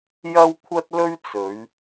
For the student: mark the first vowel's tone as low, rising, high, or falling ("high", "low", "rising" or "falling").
high